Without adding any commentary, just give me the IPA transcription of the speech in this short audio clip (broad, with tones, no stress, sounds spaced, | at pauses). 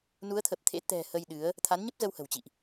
n u˨˦ ə̯ t̪ʰ ə˨˩ p̚ t̪ʰ ḛ˧˥ t̪ ɛ̤˨˩ h ə˧ j ɗ ɨ˨˦ ə̯ | t̪ʰ a˨˦ n ɲ ə˦˥ p̚ z ə˧ w h ə̤˨˩ w t͡ɕ ḭ˧˨ ʔ